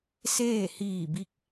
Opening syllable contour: falling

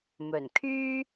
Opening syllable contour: low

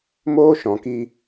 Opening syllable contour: high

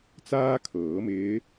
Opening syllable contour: high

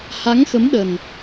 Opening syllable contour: rising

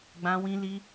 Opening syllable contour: high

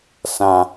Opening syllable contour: low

